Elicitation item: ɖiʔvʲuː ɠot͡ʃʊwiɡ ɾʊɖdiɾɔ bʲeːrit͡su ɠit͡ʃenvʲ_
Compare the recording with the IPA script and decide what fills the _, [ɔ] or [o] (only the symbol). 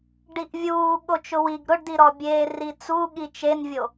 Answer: o